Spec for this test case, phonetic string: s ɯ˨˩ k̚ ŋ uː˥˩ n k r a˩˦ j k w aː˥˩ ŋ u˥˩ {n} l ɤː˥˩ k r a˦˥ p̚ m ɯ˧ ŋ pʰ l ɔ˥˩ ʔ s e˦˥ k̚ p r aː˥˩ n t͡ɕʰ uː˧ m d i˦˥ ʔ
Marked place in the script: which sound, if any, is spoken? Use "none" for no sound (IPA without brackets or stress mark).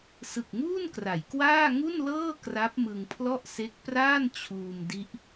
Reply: n